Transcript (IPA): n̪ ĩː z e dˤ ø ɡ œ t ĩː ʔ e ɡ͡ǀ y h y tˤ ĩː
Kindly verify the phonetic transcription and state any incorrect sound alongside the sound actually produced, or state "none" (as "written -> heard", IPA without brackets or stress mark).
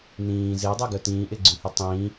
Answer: ø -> e